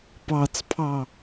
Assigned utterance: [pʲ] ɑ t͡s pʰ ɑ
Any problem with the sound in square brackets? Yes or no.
yes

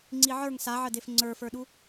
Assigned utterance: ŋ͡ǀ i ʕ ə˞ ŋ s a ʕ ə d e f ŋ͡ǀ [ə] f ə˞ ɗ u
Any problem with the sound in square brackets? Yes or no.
yes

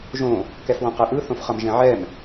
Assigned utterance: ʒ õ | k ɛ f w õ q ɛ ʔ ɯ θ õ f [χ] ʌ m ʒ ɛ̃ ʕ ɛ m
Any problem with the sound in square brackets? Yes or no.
no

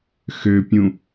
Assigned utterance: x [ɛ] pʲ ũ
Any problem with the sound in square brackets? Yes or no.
yes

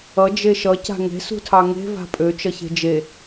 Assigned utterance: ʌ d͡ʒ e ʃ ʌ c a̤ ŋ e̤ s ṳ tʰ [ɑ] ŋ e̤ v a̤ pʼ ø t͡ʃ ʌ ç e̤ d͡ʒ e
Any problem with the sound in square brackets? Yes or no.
no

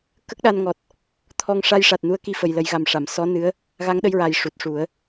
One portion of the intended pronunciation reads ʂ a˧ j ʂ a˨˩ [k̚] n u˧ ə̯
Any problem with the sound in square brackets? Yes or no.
yes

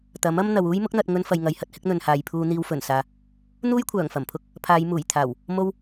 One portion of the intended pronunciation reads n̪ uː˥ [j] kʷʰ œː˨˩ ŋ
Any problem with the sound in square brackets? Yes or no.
no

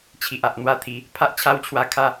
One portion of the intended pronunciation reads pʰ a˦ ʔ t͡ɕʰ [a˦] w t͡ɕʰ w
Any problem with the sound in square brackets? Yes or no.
no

